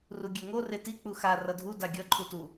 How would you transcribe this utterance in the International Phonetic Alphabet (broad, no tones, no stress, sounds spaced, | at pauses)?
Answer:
r u ɡʲ ɛ ŋ o r e t i k͡p u x a r ʌ dʱ u d a ɡʲ ʌ ǃʰ u t u